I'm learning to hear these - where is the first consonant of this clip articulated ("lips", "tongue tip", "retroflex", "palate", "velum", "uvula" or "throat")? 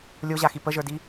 tongue tip